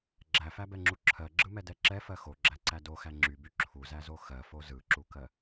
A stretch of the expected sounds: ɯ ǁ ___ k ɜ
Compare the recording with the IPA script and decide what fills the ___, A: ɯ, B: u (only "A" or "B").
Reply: B